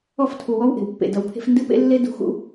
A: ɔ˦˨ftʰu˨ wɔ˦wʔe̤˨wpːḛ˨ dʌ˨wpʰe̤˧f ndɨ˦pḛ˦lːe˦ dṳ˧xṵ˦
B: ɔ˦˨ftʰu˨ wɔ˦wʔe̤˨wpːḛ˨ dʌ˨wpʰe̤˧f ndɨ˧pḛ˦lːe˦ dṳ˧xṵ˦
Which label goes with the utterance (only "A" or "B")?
A